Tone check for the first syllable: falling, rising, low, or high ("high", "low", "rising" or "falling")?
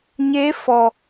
rising